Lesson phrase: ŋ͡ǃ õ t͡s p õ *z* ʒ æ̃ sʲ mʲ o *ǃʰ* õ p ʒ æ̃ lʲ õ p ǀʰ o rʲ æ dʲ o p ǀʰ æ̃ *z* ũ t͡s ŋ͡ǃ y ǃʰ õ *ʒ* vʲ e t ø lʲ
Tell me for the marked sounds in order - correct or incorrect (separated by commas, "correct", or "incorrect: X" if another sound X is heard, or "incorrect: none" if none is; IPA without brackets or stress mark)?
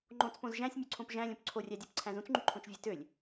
correct, incorrect: ǀʰ, correct, incorrect: t͡ʃ